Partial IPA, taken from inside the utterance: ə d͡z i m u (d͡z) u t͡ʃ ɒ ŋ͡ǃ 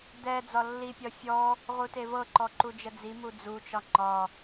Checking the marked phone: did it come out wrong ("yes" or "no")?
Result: no